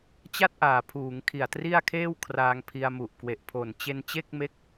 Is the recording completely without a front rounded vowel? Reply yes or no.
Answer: yes